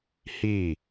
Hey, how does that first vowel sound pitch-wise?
falling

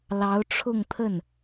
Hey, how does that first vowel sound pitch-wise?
rising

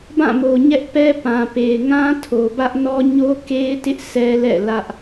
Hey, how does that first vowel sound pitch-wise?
falling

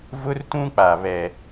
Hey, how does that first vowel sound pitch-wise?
high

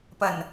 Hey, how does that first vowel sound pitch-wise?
low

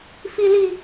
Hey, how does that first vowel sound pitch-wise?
high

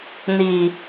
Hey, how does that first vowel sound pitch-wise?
low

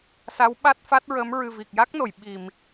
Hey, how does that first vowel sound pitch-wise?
rising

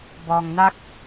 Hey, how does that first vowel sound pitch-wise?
low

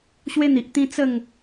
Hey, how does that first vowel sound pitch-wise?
high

